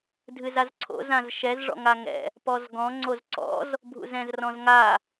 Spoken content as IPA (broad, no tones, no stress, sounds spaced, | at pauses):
dʱ ɨ z a z ǀʰ o̰ z ã z ʃ ɛ z ʐ ɔ̰ ŋ a ŋ ɛ̰ | p ɔ z ɡ ɔ̃ ŋ͡ǀ o z ǀ ɔ̰ z | bʱ ṵ z ɛ̃ z r ɔ̃ z ŋ a